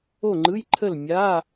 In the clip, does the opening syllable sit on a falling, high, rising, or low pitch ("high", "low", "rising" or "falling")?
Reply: falling